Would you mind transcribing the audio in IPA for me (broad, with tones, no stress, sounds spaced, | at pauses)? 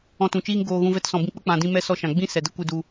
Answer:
ɔ̃˧ t ũ˨ t͡ʃ iː˦ ŋ ɡ oː˧ ɣ ũ˧ v ɛ˧ t s ɔ̃˨ b ĩ˧ k͡p ə˦ k͡p ã˨ d ĩ˧ m ɛ˧ s ɔ˧ ʃ ã˨ ɡ͡b ĩ˦ s ɛ˨ d ə˦ kʷ ɨ˧ d u˧